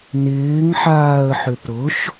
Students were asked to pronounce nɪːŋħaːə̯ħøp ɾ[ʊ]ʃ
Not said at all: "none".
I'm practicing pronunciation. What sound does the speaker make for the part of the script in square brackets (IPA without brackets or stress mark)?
ʊ